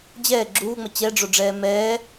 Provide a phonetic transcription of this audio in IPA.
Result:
d͡ʑ ɛː ɡ͡ǁ uː ŋ͡m ʌ t͡ɕ ɛ ɖ͡ʐ o ɖ͡ʐ ɛː m ɛː

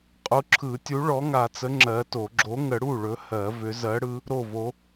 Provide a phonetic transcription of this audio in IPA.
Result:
qʼ u˨˥ ǁʰ ɯ˨˩˦ tʲ u˨˥ ɭ ɔ˨˥ ŋ a˨˩˦ t͡s ə˨˥ ŋ͡ǁ ɜ˨˥ t o˨˩˦ ɡ͡ǁ o˨˥ ŋ ə˨˩˦ ɽ u˥˩ ɭ ɵ˨˥ h ɜ˨˩˦ v ʏ˨˥ z ɜ˨˥ ɽ ɯ˨˥ | ɾ o˥˩ v o˨˥

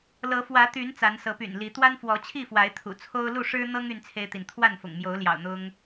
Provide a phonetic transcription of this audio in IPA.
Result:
l ɤ˨˦ f w ä˨˦ t̪ y˨˦ n t͡s a˨˦ n s ɤ˨˦ p y̰˨˩ n l i˨˦ t̪ w a˦ n f w ɔ˨˦ t͡ɕʰ i˥˨ f w a˨˦ ɪ̯ t̪ʰ ṵ˨˩ t͡sʰ o˦ ʊ̯ l u˥˨ ʂ ɻ̩˦ n̪ ɤ˦ ŋ y˦ n t͡sʰ e˦ ɪ̯ t̪ i˨ n t̪ʰ w a˥˨ n f ʊ̰˨˩ ŋ m j o˨˦ ʊ̯ l j ɑ̰˨˩ ʊ̯ n̪ ʊ˦ ŋ

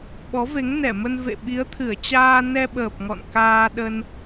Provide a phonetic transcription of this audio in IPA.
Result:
ɓ ɔ˨˦ v e˨˦ ŋ n ɛ˧˩ m ə˧ n v ḛ˧˨ ɓ i˨˦ ə̯ t̪ʰ ɨ˧˩ ə̯ t͡ɕ aː˧ n ɛ˧ ɓ əː˨˩ p̚ ŋ ɔ̰˧˨ n k aː˧ ɗ ə˧ n

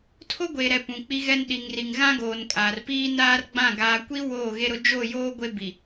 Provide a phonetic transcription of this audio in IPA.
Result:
tʰ o˦ ɡʷ e˨ ɾ ɛ˨ p ũ˨ k͡p i˦ ɣ ɛ˦ n ɗ i˨ ŋ r i˨ ŋ ɣ ã˦ ɡ oː˨ n kʼ aː˨ r p iː˦ n aː˦ r ɡ͡b ã˦˨ ɡ aː˨ kʷ i˦ w oː˦˨ ɣ e˦ ɾ ʊ˦ d͡ʒ o˦˨ j oː˦ ɡʷ e˦ b i˨

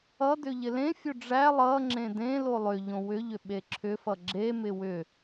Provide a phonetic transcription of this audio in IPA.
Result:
ʌ d ʏ ʎ ɪ l ẽ fʲ o ɖ͡ʐ æ lˠ ʌ ŋ͡ǁ ẽ d ẽ l o lˠ ʏ ʎ õ w ʏ ʎ ʏ ɓ e ǁʰ ʏ f ʌ ɡ͡ǁ e m ɪ w ʏ

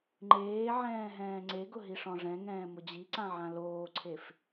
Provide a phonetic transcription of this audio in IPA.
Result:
ŋ͡ǃ eː ʕ ɛ̃ː ɦ ɛ̃ː ŋ͡ǀ e ɡ ʊ ɦ i ʂ ɔ̃ ʐ ɛ̃ ŋ ɛ̃ː m ʊ d͡ʑ i ǀ ã ʕ ã l oː ǀʰ e f

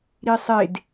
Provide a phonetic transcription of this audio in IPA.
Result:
ɾ i sˤ e d

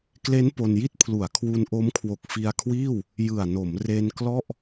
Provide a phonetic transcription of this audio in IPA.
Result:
k l e˦˥ n p o˧ n j i˥˩ t̚ pʰ l u˩˦ a̯ kʰ w u˧ n ʔ o˦˥ m kʰ w o˨˩ k̚ f i˧ a̯ kʰ w iː˥˩ w | j ɯ˨˩ a̯ n o˩˦ m r e˧ n k l ɔ˥˩ ʔ

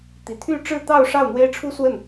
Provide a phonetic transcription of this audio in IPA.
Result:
t̪ i˨˩ t̪ʰ y˥˧ ʈ͡ʂ ɻ̩˥˧ t̪ ɑ˥˧ ʊ̯ ʂ ɑ˥˩ ʊ̯ n̪ w e˥ ɪ̯ ʈ͡ʂʰ u˥ s w ə˥˩ n

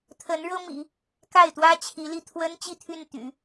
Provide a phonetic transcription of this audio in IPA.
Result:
t̪ʰ ə˧˥ n ɻ ɤ˥ m ḭ˨˩˦ | k a˥˩ ɪ̯ t̪ w ä˥ t͡ɕʰ i˧˥ l i˥˩ t̪ʰ w ə˥ n t͡ɕ i˥˧ t̪ʰ y˥˩ n t̪ y̰˨˩˦

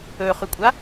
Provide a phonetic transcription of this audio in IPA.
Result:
ɵ χ ʉ kʷʼ a

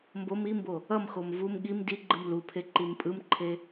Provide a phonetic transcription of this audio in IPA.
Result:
m b o m i m b o | ʌ m x o m v u m ɠ i m d i ɡ͡ǃ ɯ m l u pʰ e ǃ i m pʼ ɯ m ǃʰ e

